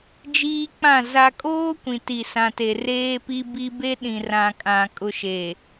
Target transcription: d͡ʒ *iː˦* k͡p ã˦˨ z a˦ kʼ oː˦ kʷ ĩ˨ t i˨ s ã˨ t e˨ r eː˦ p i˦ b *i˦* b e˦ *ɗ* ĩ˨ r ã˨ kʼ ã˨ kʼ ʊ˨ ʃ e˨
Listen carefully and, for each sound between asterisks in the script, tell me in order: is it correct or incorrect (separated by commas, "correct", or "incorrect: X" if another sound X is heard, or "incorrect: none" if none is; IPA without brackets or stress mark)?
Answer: correct, correct, correct